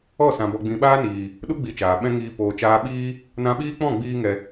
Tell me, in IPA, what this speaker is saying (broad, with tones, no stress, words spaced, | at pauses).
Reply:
ɔ˦˨sã˨ bɔ˨ɡ͡bĩ˨ɓaː˦niː˨ | ɗu˦ ɡ͡bi˧t͡ʃaː˨ ɓɛ̃˦ŋiː˧ poː˨t͡ʃaː˧ɓiː˦ | nã˧ɓiː˦k͡pɔ̃˦˨ ɡ͡biː˦ŋɛ˧